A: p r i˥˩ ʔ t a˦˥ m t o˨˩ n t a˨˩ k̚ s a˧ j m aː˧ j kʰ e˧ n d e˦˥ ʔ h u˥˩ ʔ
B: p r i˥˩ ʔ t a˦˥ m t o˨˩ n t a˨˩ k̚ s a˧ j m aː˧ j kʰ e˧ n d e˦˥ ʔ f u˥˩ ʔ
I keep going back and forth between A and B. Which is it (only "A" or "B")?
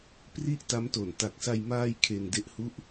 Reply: A